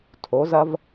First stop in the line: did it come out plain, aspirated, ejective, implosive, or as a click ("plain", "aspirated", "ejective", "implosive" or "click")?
aspirated